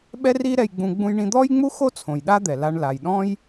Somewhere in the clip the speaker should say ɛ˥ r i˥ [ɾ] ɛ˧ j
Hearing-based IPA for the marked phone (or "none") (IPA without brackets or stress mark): ɾ